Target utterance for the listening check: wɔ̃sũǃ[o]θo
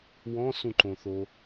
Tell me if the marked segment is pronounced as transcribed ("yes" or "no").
no